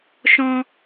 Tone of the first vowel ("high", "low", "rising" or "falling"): high